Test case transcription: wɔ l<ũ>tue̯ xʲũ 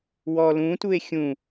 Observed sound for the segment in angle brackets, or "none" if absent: ũ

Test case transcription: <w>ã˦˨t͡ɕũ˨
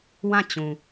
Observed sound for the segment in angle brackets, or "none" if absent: w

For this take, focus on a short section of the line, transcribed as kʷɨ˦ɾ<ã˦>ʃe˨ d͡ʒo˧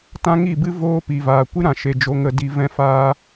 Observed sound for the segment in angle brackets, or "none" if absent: ã˨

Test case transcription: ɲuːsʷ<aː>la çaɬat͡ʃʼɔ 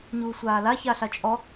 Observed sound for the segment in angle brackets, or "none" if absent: aː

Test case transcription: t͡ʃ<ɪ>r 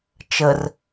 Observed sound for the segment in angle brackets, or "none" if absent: ə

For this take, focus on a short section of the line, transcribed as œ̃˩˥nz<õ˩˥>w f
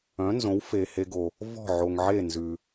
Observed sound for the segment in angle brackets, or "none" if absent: õ˩˥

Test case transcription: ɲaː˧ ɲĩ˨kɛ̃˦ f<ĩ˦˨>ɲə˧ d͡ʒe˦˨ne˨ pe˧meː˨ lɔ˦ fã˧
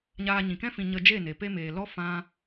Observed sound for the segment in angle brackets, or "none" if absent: ĩ˧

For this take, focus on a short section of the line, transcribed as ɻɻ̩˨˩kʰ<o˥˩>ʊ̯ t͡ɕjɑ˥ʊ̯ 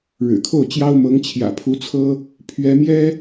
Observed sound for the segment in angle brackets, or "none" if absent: o˥˩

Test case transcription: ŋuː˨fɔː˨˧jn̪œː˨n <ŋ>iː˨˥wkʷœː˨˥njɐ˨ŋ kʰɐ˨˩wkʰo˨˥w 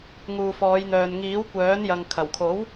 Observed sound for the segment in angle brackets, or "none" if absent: ŋ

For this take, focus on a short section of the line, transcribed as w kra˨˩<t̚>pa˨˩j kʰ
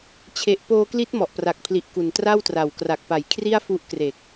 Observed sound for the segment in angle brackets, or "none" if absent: k̚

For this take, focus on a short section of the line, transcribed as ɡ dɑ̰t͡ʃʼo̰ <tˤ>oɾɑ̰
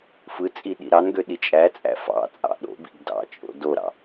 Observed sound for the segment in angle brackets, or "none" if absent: d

